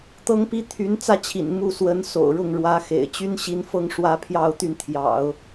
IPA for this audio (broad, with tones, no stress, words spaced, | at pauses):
t̪ɤ˥ŋpi˥ t̪ʰy˧˥nt͡sä˥t͡ɕʰḭ˨˩n mu˥˩ swə˧˥nso̰˨˩ʊ̯ɻʊ˥˩ŋɻwä˧˥ xḛ˨˩ɪ̯ t͡ɕy˥nɕi˧˥nfɤ˥˧ŋ ʂwä˥˧pʰjɑ˥˧ʊ̯ t̪y˥˩nt̪ʰjɑ̰˨˩˦ʊ̯